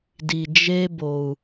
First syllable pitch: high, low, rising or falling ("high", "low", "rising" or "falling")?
low